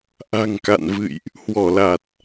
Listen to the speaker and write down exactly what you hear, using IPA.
ʔ a̤˨˩ ŋ k a̰˧˨ n v ɨ̰˧˨ j ʔ | h w ɔ˧˩ l a˨˩ t̚

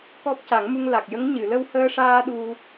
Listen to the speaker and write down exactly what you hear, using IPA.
k ɔ˦˥ p̚ c a˨˩˦ ŋ m u˧ ŋ l a˨˩ k̚ j ə˧˥ ŋ ɲ ɨ˨˩˨ l ə˧ w h əː˧ ʂ aː˧ ɗ u˧

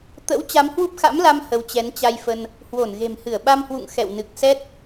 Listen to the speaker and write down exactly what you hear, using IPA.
t̪ ə̰˧˥ w t͡ɕ a˨˦ m h w u˦˥ p̚ x a̰˧˥ m l a˧ m h ə˨˦ w t͡ɕ ɛ˨˦ n t͡ɕ a˧ j f ə˧ n | h w o˧˩ n ɣ e̤˨˩ m h ɨ˧˩ ə̯ ɓ a˧ m h w ṵ˧˨ ŋ x ɛ̰˧˨ w n ɨ˨˩ k̚ s ɛ˦˥ t̚

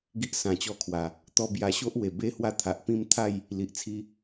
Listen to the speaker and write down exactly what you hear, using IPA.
ɡ i˦ ʔ s ã˨˩ t͡ɕ ɔ˧ kʰ w a˨˩ | t̪ ɔ˧ b j a˧ ɕ o˦ ʔ w e˨˩ b e˦ h w a˦ t̪ʰ a˨ ʔ p ĩ˥˧ m t̪ʰ a˥˧ j | l i˨ ʔ t͡sʰ i˧

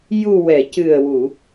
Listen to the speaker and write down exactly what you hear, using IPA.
j u˨˩ w ɛ˨˩˨ c ɨ˨˩ ə̯ w u˨˩˨

